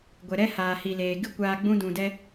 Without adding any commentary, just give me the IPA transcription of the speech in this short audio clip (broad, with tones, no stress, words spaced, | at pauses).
ɡʷɛ˨ɾɛ˦ haː˨hi˨leː˨ ɡɨ˦kʷaː˧ɡ͡bũ˦ dũ˧dɛ˦